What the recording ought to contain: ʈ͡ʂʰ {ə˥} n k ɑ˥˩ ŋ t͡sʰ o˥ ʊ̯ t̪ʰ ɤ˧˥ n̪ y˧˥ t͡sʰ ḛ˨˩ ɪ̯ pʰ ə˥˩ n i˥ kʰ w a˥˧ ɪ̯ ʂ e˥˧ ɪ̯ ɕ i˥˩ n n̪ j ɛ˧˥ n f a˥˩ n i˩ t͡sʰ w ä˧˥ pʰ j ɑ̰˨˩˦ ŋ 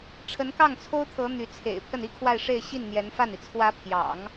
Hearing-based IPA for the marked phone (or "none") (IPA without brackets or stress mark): ə˧˥